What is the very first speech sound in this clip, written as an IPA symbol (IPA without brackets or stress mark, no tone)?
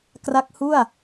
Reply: k